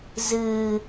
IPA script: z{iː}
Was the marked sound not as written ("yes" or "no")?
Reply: yes